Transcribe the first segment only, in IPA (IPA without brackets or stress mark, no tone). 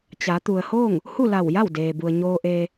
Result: t͡ɕ